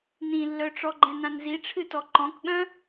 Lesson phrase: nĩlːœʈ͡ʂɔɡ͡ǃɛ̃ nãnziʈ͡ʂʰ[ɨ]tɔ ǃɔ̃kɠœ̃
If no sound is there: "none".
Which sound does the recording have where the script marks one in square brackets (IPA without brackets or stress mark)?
ɨ